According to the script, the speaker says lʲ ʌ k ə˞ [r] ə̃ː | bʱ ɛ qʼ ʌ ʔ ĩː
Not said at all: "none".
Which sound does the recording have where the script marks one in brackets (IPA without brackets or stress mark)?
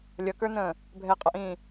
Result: n